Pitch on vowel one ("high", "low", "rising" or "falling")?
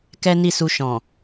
high